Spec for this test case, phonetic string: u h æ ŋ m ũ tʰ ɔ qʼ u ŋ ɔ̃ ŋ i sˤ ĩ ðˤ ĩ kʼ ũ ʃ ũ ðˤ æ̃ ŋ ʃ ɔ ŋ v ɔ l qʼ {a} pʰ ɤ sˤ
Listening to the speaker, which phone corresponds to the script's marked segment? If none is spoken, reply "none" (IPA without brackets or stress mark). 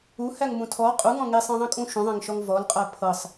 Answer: æ